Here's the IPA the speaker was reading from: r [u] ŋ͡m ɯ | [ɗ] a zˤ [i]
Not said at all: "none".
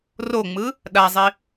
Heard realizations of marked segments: o, ɗ, i

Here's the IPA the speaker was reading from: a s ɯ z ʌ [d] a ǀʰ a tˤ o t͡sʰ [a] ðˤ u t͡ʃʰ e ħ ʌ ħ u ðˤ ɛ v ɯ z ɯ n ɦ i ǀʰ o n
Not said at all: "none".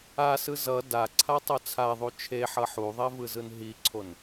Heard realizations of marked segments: d, a

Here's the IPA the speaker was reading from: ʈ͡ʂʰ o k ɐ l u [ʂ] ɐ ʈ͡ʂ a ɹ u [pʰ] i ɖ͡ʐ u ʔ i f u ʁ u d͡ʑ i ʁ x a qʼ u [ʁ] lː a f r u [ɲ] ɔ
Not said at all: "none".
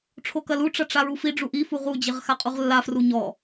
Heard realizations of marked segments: ʈ͡ʂ, f, ʁ, ɲ

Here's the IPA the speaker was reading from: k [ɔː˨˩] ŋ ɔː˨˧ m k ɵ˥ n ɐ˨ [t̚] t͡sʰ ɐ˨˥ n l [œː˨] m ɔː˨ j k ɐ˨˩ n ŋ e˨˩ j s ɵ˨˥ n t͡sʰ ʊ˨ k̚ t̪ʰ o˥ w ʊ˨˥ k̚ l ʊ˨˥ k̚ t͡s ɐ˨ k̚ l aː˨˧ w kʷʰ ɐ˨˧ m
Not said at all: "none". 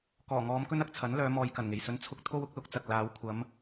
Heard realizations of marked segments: ɔː˨˩, k̚, œː˨˧

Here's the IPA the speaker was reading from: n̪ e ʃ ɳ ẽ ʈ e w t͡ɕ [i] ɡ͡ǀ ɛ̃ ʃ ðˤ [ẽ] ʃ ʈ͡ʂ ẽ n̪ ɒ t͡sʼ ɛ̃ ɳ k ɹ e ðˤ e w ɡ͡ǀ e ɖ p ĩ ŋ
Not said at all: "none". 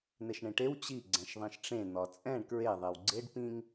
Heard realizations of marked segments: i, ĩ

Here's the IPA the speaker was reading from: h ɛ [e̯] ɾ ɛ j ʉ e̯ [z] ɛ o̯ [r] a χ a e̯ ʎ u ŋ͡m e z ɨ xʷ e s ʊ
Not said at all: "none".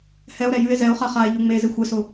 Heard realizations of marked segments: o̯, z, χ

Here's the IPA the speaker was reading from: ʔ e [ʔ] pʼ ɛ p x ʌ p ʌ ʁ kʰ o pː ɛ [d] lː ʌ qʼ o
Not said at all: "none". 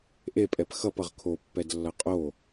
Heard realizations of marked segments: none, d

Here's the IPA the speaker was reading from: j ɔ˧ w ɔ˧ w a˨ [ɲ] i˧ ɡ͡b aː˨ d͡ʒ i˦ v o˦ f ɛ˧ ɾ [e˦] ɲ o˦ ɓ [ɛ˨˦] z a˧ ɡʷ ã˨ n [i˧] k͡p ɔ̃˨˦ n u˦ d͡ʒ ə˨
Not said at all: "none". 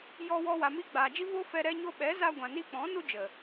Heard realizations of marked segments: m, ɛ˦, ɛ˨˦, i˧

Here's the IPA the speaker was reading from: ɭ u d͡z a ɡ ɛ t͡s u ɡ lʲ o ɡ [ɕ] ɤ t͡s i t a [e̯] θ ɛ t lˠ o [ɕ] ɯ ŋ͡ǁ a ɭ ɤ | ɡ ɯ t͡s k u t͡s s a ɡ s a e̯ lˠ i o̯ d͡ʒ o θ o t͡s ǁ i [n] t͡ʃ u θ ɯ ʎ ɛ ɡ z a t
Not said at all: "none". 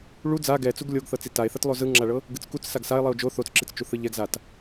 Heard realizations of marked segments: θ, e̯, z, t͡s

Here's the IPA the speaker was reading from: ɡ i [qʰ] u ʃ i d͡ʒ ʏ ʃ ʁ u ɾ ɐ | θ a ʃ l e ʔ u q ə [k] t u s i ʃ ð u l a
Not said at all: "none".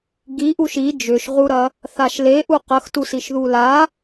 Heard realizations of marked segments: ʔ, x

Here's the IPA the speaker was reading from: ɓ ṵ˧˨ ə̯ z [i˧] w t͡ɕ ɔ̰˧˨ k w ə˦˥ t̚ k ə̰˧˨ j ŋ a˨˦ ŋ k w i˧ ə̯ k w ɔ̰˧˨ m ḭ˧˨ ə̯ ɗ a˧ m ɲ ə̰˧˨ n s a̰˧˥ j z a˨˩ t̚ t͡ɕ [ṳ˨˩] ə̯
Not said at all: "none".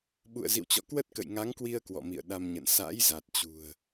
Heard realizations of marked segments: ḭ˧˨, ṳ˨˩

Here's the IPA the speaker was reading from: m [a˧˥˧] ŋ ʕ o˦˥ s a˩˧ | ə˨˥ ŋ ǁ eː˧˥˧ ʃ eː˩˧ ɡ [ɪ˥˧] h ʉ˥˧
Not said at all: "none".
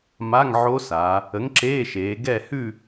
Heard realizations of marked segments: a˧˥˧, ɛ˥˧

